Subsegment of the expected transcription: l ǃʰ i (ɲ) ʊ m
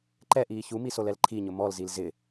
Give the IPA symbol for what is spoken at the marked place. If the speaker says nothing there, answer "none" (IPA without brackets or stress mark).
ɲ